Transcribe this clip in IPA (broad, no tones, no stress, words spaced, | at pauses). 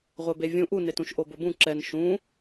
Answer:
ʁʷebevʲũ ʔunetũʃ ʔobʊbũ ǁɛn ʃũ